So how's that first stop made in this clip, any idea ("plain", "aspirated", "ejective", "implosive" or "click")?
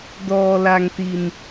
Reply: plain